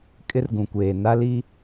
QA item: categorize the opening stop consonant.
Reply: ejective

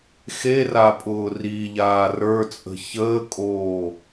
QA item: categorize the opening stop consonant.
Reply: ejective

